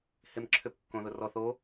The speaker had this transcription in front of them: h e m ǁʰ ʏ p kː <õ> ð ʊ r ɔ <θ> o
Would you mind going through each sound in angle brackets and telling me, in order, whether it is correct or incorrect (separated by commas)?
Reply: correct, correct